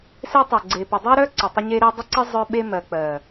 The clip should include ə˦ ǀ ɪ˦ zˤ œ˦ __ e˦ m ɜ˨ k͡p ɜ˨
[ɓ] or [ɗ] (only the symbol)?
ɓ